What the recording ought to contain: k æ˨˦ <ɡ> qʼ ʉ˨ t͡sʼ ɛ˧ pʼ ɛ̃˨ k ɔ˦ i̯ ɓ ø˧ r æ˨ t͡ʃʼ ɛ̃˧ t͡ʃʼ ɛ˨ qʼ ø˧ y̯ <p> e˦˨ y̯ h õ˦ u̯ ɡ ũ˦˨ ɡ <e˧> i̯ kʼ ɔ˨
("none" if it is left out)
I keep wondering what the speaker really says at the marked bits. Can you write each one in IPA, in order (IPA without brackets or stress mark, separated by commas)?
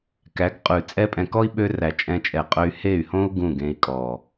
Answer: ɡ, h, ẽ˧